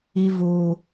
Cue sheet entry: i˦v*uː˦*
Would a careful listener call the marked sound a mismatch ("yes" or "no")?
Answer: no